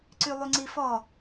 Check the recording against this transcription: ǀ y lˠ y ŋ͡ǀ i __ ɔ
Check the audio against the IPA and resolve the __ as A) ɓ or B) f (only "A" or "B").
B